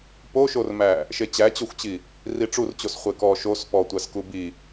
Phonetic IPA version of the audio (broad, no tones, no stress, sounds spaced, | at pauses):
p o ʃ o r m æ | ʃ e t͡ɕ æ t͡ɕ o xʷ t͡ɕ i | r i ʈ͡ʂ u r t͡ɕ o s χʷ e k ɔ ʃ o s p ɔ tʷ æ s k u b i